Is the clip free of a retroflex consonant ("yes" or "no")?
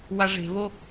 no